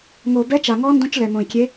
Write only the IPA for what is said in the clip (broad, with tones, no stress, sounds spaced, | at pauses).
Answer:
ŋ o˨˩ b ɛ˧˥ t͡ʃ a˨˩ ŋ ɔ˧˥ n d õ˧˥ t͡ʃ l ɛ˨˩ m õ˨˩ i̯ kʲ e˧˥